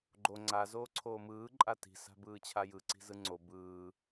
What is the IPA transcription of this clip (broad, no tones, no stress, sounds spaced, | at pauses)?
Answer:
ɡ͡ǃ o ŋ͡ǀ a z oː ǀʰ oː m ɯː ǃʼ a t i̤ s a̤ b ɯː t͡ɕʰ a j ɯ ǀ i̤ z ɯ ŋ͡ǀ o b ɯː